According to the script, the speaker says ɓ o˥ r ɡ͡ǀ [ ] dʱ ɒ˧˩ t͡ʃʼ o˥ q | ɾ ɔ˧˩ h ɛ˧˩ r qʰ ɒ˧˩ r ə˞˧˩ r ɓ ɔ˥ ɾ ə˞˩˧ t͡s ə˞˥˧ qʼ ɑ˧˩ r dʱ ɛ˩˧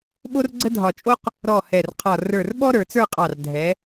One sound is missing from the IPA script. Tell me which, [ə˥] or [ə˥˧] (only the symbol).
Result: ə˥